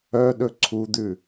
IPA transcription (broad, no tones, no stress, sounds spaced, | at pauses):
œ ɗ ɵ ǀʰ u d̪ ʉ